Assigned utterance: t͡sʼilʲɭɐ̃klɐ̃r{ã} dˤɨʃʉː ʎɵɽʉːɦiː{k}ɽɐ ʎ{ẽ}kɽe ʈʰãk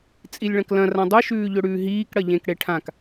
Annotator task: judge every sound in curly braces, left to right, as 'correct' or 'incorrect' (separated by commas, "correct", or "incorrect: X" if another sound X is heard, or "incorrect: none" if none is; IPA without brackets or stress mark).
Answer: correct, correct, correct